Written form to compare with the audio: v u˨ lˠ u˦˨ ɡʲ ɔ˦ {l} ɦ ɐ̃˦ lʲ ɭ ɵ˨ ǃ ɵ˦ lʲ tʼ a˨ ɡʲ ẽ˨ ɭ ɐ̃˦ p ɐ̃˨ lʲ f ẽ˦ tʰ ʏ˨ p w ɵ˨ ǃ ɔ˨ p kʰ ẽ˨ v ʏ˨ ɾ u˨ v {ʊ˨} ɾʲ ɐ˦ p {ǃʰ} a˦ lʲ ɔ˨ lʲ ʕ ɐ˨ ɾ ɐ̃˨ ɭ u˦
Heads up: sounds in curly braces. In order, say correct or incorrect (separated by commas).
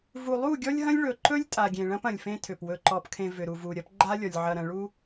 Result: incorrect, incorrect, incorrect